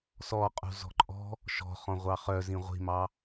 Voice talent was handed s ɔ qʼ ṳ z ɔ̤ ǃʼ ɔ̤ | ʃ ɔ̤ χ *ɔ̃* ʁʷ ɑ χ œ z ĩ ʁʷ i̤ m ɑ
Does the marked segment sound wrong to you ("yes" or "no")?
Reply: no